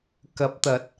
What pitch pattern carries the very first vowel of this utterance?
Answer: rising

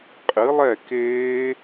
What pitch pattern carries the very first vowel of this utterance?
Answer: rising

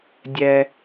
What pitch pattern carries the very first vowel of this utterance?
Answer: high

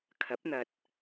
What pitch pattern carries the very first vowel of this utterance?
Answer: rising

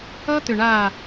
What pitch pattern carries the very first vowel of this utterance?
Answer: high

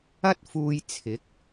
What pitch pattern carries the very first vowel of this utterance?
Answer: high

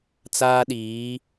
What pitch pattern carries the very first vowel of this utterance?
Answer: high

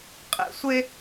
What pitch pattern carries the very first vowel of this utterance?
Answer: low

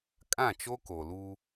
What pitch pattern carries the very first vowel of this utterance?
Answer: falling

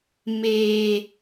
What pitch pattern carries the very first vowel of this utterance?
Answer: high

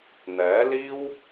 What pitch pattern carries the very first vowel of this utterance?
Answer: rising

